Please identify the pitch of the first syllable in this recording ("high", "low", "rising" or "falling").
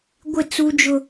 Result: falling